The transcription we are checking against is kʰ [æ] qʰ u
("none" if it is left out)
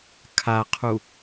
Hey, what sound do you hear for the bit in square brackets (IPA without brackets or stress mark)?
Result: a